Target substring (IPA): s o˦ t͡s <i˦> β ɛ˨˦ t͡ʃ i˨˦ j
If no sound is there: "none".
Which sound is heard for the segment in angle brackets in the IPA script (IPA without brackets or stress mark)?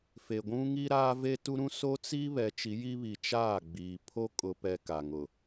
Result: i˦